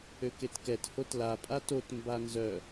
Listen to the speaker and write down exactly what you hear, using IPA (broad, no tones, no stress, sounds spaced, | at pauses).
ø k e t k ɛ t h o t l a pʼ a t o t m b a n z œ